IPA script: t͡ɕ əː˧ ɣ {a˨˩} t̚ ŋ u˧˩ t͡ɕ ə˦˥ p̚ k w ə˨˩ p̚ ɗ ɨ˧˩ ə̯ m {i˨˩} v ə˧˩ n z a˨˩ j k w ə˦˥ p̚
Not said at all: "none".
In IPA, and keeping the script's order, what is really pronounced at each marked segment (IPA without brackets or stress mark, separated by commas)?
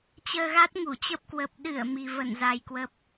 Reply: a˦˥, i˨˩